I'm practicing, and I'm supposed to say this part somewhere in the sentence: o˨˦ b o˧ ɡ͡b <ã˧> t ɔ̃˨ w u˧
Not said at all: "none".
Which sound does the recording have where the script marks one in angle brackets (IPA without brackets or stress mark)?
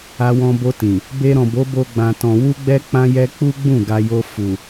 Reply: ã˨